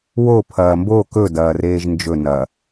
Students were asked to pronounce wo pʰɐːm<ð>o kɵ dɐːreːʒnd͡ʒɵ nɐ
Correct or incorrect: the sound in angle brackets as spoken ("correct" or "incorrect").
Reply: incorrect